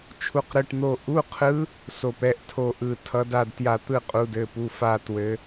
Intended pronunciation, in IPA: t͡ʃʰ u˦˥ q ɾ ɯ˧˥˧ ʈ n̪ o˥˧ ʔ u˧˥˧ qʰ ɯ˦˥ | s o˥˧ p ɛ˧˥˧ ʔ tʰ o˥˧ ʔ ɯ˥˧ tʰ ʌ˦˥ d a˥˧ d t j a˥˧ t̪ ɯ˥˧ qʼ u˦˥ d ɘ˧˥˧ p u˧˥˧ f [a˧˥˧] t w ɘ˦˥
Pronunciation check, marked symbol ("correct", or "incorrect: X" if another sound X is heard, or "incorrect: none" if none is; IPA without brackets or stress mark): incorrect: a˥˧